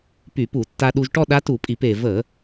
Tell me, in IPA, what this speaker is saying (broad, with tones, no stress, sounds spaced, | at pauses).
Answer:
p y˧˩˧ p u˧˩˧ tː a˧ ɗ u˧ ʒ ʈ ɔ˥˧ ɗ a˧˥ t u˧˩˧ pʼ i˧˩˧ p e˩ v ə˧˩˧